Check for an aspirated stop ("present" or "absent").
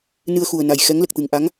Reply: absent